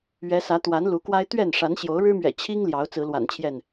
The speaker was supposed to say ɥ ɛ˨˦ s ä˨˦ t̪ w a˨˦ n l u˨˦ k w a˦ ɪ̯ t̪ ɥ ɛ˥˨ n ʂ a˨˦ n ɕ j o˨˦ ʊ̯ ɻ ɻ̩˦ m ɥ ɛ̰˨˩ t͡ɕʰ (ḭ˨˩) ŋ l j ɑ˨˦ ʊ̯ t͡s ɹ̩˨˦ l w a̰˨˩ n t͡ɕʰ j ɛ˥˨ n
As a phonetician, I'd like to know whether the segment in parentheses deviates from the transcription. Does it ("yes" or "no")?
yes